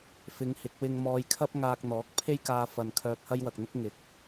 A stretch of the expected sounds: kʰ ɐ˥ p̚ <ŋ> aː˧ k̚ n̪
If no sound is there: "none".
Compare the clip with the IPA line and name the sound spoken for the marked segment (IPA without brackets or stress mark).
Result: ŋ